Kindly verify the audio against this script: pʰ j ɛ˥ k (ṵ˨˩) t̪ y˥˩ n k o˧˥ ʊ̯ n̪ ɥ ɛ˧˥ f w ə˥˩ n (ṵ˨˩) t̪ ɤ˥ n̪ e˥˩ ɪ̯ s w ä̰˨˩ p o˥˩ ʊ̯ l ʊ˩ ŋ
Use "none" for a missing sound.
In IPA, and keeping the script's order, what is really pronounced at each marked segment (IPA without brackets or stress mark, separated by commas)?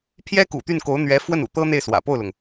ṵ˨˩, ṵ˨˩